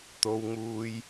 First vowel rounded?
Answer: yes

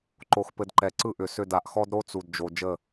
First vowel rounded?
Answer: yes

